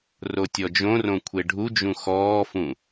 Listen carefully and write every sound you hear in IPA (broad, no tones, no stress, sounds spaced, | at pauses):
r o tʲ ɔ d͡ʒ õ r õ kʷʰ e ɖʱ u d͡ʒ ũ x ɔː f ũ